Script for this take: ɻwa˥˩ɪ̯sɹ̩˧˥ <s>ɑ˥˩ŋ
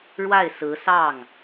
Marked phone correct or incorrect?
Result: correct